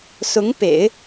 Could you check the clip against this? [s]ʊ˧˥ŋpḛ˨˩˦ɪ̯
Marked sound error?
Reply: no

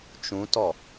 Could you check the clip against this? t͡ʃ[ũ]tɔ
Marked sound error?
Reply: no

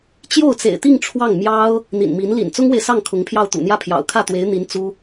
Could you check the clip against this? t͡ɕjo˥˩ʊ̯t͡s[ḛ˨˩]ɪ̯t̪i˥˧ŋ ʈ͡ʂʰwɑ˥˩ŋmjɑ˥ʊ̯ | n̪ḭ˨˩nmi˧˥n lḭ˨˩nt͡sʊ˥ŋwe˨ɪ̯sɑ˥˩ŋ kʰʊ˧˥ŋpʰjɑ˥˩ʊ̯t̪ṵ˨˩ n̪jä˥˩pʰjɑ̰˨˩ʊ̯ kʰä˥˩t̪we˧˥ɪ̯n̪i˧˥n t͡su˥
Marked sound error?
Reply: no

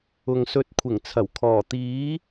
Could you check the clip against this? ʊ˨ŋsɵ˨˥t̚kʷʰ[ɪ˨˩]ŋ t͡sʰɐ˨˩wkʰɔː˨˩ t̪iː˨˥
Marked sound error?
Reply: no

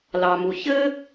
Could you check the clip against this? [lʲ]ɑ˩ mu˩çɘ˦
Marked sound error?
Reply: yes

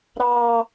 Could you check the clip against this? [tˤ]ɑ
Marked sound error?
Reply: yes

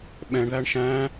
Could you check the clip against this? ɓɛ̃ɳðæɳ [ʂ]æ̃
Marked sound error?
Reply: yes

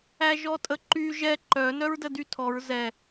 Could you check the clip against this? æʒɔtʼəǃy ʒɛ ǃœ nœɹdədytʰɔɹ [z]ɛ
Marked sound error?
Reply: no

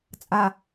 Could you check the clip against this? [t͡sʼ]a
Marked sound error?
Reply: no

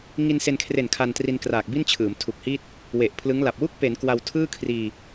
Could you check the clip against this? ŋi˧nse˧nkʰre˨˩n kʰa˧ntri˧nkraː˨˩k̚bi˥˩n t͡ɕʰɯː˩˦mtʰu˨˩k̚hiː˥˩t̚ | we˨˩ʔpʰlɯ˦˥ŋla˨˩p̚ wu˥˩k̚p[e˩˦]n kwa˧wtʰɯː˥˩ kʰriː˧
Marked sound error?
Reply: no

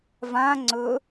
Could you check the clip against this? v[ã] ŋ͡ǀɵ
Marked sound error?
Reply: no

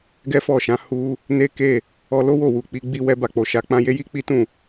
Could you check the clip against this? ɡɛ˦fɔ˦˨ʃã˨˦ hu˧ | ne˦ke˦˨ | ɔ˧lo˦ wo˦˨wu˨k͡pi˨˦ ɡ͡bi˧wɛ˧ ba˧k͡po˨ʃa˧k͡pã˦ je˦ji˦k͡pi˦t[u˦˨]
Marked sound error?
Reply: yes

